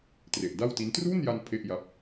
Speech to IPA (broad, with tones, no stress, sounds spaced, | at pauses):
t r e˨˩ ʔ d a˥˩ w t i˦˥ n t r uː˥˩ n j a˧ n pʰ e˥˩ ʔ j a˦˥ p̚